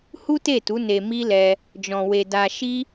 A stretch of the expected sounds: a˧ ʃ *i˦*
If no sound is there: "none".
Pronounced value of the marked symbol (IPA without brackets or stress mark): i˦